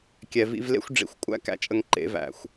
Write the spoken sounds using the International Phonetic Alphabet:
kʲ ɛ˨ v ḭ˧ v l ḛ˦ xʷ ɖ͡ʐ ḭ˨ xʷ kʷʼ æ̰˦ k æ̰˨ t͡ʃʼ ə˧ ŋ ǃ ḛ˨˦ v æ̰˨ xʷ

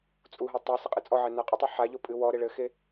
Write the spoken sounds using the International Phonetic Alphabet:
t͡sʼ u ɦ ɔ tˤ e s ɘ qʼ ɨ t͡sʼ ɔ ʕ ɛ n a qʼ ɘ tˤ o ħ a ʎ o pʼ ɨ w ɔ ɾ e ɭ ɘ x e

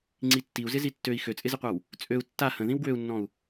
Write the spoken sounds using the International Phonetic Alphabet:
ŋ͡ǀ i tː i u̯ z ɪ z i tː ø i̯ x ø t͡sʼ ɪ z ɪ qʷ a w | t͡sʼ ø u̯ tː a h ə̃ ð ĩ w ɡ w ø u̯ nː ɔ̃ u̯

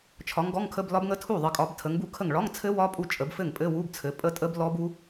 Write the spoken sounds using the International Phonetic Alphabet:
t͡ʃʰ ɒ˨˦ ŋ ɡ ɔ˧˥˧ ŋ kʰ ə˧˥˧ b l ɒ˦˥ b ŋ ə˦˥ tʰ u˥˩ ðˤ ɘ˨˦ kʼ ɒ˨˦ b tʰ ə˨˦ ŋ b u˥˩ kʰ ə˥˩ ŋ ɭ ɒ˧˥˧ ŋ t͡sʰ ɘ˦˥ w ɒ˦˥ pʼ u˥˩ t͡ʃʼ ə˨˦ b f ɘ˥˩ ŋ pʼ ɘ˧˥˧ w u˧˥˧ b t͡sʰ ɘ˨˦ pʼ ə˦˥ tʼ ə˦˥ b l ɔ˦˥ b u˦˥

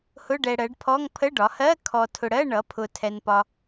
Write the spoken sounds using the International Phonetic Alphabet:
h ʊ˧˥˧ ɖ ɛ˨ ɽ ɜ˩˥ ɖ pʰ ɔ˧˥˧ ŋ pʰ ə˧˥˧ ɖ ɒ˩˥ h ɜ˧˥˧ kʰ ɔ˨ tʰ ʊ˨ ɽ ɜ˧˥˧ ɳ ʌ˩˥ pʰ ʊ˨ tʰ ɛ˨ n p ɒ˨

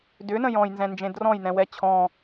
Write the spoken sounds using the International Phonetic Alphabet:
d ʏ n ə̃ j ɔ̃ j n z ɛ̃ n d͡ʒ ẽ d r ɔ̃ j n ɛ̃ w ɛ t͡ɕʰ ɔ̃

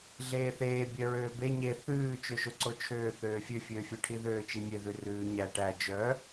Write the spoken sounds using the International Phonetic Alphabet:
ɮ eː θ eː bʲ œ ɹ øː b e ɲ e θ ʉː t͡ʃ ø ʃ o ǀ o t͡ʃʰ øː θ øː fʲ ø fʲ øː fʲ œ ʈʰ i ð øː t͡ʃ i mʲ e ð ʉ r ʉː ɲ æ ʈ æ d͡ʒ œ

